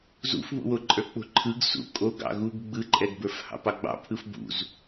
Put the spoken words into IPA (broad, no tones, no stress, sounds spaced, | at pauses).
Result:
z ṵ f β ṵ w o ǃʼ ə˞ k͡p o̤ ǃʰ ɯ ɡ s ṵ kʼ o ɡ ɑ̰ ɣ u ɡ ɡ͡b ɯ ǃʼ ɛ ɡ b ə˞ f h ɑ̰ p ɑ ɡ͡b ɑ̰ pʰ ɯ f b ṵ z